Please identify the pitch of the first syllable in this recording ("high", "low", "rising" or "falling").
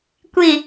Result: low